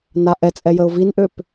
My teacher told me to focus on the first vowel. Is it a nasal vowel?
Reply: no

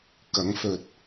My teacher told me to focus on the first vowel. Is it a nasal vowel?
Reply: no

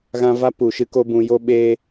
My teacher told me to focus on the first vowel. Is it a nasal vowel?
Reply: yes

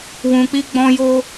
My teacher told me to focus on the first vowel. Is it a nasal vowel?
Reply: yes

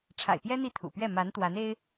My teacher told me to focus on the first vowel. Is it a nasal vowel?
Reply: no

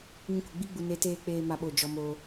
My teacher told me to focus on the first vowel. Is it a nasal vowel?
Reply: yes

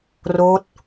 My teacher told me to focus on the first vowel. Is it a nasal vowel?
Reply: no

